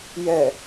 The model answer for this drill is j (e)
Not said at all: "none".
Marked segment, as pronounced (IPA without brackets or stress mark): ɛ